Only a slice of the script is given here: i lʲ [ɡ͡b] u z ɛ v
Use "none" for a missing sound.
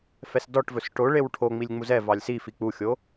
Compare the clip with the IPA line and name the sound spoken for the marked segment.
ŋ͡m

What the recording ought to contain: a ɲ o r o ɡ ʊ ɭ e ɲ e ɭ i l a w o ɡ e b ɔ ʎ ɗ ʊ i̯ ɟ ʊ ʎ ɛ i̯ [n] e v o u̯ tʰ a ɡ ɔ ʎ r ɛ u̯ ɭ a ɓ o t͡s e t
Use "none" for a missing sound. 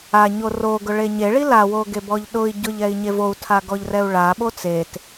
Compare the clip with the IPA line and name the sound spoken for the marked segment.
ɲ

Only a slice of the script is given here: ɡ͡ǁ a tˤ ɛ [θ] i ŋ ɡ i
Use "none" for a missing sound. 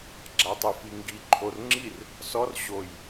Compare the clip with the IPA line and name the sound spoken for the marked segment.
f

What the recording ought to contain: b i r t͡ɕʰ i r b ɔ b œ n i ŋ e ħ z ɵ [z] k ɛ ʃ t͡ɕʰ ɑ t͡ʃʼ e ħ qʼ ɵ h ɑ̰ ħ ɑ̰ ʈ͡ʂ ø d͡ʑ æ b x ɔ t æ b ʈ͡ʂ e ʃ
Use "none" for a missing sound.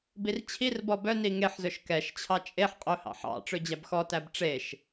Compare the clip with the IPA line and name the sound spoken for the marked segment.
ʃ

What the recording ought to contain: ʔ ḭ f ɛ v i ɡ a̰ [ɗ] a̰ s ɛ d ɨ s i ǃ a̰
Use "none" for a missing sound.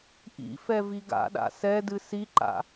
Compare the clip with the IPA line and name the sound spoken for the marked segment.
ɗ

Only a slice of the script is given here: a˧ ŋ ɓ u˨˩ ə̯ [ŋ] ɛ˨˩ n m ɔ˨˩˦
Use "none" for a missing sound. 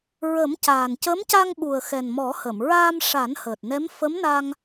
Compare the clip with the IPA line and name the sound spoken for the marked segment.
x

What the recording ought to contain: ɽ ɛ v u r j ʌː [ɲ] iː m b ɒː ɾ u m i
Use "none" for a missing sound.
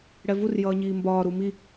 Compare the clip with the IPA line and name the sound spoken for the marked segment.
ɲ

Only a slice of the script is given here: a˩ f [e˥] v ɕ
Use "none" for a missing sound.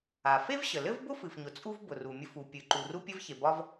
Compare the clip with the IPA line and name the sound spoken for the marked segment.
e˥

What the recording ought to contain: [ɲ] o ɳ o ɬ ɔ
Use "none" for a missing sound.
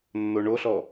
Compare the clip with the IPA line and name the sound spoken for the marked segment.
nː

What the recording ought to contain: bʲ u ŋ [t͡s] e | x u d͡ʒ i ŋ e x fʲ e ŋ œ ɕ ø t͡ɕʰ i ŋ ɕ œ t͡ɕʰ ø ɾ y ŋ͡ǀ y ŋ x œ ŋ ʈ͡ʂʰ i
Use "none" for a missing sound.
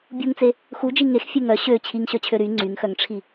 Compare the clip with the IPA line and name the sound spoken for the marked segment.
t͡s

